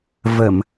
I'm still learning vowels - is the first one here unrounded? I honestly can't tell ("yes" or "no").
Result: yes